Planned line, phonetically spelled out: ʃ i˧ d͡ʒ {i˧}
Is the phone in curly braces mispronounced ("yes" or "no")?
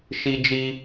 no